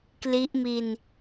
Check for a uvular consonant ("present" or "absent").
absent